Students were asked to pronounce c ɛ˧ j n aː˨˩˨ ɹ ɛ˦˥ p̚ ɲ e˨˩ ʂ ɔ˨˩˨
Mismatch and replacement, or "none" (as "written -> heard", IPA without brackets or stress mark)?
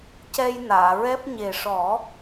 ɔ˨˩˨ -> ɔ˨˩˦